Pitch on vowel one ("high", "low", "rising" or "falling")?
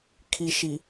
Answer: low